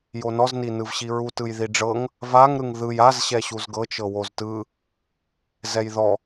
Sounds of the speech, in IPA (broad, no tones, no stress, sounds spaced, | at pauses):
j o n ɔ z n i n ɯ v ɕ i ɹ u t ɯ j ð i ɖ͡ʐ ɤ ŋ | v a ŋ ɾ ɯ ŋ ð ɯ j a z ɕ ɛ ɕ u z ɡ ɤ t͡ʃ ɤ w o z t ɯ | z ɛ j ð ɔ